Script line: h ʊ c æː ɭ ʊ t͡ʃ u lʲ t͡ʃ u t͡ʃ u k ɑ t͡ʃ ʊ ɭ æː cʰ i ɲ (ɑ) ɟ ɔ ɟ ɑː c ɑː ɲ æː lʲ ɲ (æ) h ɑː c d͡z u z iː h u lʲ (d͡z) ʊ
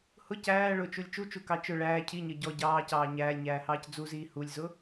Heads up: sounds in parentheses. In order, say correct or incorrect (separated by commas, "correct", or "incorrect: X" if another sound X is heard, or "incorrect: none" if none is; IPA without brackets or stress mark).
incorrect: ʌ, incorrect: æː, incorrect: z